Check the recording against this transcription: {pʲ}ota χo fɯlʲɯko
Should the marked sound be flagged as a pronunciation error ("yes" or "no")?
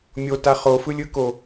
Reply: yes